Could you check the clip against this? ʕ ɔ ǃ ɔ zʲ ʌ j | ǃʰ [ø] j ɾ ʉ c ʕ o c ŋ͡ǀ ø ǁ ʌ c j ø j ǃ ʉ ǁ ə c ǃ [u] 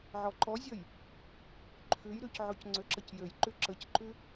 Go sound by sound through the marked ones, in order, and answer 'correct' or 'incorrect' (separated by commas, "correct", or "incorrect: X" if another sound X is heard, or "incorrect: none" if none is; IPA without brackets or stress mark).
incorrect: ʉ, incorrect: ʉ